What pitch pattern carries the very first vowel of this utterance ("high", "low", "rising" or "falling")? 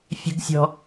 high